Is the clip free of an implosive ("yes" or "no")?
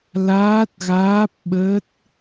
no